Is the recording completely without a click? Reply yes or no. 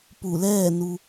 yes